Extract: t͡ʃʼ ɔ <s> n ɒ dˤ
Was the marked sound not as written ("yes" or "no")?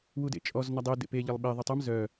yes